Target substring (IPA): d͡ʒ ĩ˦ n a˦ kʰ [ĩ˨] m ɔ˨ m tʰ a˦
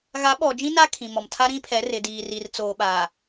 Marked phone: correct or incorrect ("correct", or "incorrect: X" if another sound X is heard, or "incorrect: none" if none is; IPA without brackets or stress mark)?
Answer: correct